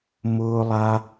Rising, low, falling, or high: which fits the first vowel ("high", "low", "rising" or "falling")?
high